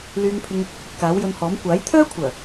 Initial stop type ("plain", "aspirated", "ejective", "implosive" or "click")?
aspirated